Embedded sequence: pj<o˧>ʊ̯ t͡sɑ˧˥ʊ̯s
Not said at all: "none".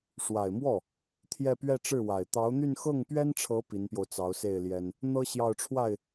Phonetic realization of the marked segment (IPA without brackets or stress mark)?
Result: o˧